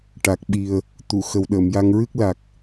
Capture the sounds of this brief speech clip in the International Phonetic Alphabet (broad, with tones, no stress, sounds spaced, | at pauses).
ʈ a˨˩ k̚ ɓ i˨˩ ə̯ | t̪ u˨˩˨ x ə˨˩ w ɗ əː˨˩˨ m j a˧ ŋ ɹ ɨ˦˥ k̚ l a˨˩ k̚